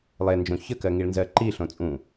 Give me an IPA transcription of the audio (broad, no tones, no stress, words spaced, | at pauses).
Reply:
lˠend͡ʒõ çəkɜŋiɭnzɜ ǃiɬõ t͡sʼũ